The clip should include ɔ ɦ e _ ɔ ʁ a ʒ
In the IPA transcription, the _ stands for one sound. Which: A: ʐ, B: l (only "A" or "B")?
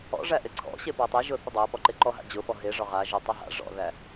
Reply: A